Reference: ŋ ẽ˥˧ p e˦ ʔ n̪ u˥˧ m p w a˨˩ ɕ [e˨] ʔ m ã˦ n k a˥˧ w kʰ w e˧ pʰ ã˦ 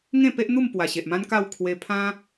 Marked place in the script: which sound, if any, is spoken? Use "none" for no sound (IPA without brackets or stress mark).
e˨